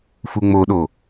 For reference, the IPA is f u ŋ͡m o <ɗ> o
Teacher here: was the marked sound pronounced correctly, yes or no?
yes